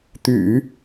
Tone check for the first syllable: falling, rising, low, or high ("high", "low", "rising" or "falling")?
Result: low